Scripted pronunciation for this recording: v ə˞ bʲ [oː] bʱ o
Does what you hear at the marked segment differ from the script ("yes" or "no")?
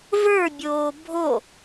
no